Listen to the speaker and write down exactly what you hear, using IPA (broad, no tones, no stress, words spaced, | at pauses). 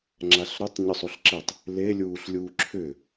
ŋ͡ǁaɬɾʏtˤ ɲʏsˤuɬǁetˤ | lelʲuːɬlʲuː ǁʰʏ